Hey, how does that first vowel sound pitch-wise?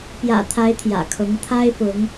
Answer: low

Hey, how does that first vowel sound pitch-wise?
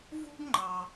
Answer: high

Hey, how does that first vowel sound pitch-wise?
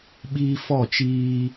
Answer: high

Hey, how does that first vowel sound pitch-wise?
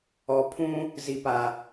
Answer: low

